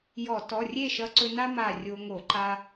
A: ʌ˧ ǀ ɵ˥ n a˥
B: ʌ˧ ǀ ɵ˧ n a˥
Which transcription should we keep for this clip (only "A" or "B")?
B